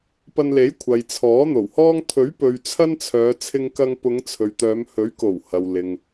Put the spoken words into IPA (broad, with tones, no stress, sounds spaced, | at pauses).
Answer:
p ɐ˧ n l e˨˥ j kʷʰ ɐ˨ j t͡sʰ ɔː˨˥ n̪ o˨˩ w h ɔː˥ ŋ t̪ʰ ɵ˨˥ ɥ p ɵ˨ ɥ t͡sʰ ɐ˥ n t͡sʰ œː˨˧ t͡sʰ ɪ˧ ŋ k ɐ˧ ŋ p ʊ˨˧ ŋ t͡sʰ ɵ˨ ɥ t̪ œː˨˧ m h ɵ˨˥ ɥ k o˨˩ w h ɐ˨ w l ɪ˨ ŋ